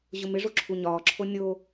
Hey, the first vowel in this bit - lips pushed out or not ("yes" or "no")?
yes